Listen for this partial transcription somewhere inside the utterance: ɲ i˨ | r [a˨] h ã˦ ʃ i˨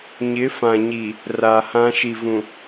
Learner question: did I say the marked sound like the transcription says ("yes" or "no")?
yes